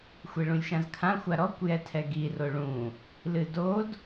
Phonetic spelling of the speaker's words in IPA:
xʷ e ɭ ũ lʲ ʃ ã z kʰ ã xʷ a ɾ ɔ kʷ j ɛ tʰ ɛ ɡ i r o ɭ ũ | l ɨ d o d

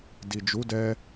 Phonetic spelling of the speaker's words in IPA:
d i˨ d͡ʒ u˨˦ d ɛ˧

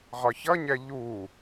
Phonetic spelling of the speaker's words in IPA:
ʁ ɒ ç ʌ ɲ ɛ ʎ u

